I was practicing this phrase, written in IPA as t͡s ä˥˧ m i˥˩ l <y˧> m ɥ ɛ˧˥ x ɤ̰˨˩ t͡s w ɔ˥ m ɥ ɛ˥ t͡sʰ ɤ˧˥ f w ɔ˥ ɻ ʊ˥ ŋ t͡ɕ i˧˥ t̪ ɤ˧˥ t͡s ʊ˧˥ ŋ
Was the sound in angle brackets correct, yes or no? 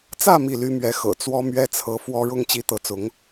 no